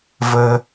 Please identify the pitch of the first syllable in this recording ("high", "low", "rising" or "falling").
high